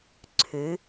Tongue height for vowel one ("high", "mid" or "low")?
high